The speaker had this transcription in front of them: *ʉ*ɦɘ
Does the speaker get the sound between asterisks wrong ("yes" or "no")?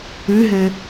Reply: no